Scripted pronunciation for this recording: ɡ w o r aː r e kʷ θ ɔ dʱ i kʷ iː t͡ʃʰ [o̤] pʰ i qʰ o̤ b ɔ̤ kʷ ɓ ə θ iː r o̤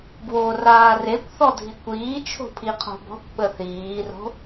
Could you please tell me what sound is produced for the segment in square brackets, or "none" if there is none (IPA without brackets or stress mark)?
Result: o̤